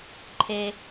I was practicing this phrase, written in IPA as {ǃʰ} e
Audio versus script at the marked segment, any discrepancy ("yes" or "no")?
no